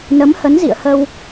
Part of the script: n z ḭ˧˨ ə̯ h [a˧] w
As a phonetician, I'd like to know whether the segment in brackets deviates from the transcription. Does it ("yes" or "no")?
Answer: yes